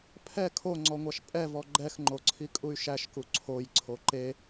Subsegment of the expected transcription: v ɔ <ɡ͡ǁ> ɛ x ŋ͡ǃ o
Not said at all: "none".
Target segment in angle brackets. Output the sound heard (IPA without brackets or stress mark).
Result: ɡ͡ǃ